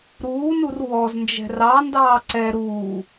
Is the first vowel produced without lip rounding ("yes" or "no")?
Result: no